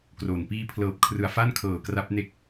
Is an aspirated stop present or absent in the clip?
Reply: present